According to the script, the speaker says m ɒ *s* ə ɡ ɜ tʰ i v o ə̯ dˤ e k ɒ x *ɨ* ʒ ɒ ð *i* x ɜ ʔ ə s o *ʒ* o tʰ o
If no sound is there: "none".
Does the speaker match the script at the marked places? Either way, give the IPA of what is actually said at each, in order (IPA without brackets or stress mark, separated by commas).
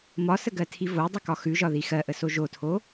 s, ʉ, i, ʒ